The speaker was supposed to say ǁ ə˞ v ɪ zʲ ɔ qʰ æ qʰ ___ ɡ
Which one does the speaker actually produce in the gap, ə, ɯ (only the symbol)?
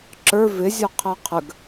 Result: ə